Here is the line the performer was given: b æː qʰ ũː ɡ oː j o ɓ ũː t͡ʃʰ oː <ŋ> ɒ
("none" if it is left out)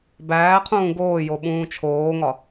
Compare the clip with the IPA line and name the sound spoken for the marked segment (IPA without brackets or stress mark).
ŋ